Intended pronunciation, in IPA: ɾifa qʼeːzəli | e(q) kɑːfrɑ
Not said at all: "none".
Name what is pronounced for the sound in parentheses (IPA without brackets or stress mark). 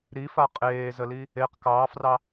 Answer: q